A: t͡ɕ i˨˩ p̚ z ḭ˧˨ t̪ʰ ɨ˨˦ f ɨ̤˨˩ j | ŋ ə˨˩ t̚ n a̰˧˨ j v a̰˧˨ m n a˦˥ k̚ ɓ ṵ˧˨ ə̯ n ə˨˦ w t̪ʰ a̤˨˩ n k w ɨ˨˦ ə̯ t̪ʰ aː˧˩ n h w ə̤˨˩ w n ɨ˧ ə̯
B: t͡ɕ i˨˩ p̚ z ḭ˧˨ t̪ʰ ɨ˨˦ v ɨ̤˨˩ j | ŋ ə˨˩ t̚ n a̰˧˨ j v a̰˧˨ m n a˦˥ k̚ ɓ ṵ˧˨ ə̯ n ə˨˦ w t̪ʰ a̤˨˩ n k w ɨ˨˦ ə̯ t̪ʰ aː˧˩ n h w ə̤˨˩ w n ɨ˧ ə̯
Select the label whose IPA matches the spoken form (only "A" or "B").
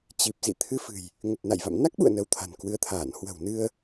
A